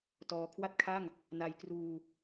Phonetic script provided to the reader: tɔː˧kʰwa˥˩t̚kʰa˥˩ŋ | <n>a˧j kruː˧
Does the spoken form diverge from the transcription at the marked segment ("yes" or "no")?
no